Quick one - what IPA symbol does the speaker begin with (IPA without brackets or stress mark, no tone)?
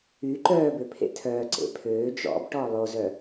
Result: y